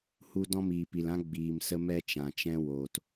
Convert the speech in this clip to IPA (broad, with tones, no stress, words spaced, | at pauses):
hu˧ dɔ̃˧miː˨pi˨lã˧ ɡ͡biː˨msə˧ mɛ˧t͡ʃã˨t͡ʃɛ̃˧ woː˨t